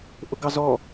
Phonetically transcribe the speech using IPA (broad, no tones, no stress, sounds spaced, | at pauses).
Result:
ʔ ʊ ɡ ɑ z ɔ